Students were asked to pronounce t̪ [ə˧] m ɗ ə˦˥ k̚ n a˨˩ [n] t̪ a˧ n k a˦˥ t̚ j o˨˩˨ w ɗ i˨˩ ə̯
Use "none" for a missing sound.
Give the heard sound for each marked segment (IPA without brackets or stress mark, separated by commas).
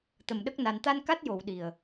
ə˨˩, n